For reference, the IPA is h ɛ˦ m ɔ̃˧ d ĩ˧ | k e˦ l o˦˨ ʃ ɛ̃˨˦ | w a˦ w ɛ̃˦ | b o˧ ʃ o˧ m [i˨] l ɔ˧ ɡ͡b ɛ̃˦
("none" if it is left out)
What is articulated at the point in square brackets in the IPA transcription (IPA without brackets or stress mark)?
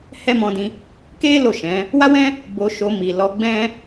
i˨